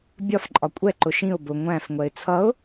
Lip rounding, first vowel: rounded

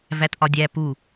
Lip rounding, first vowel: unrounded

